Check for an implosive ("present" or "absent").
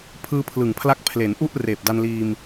absent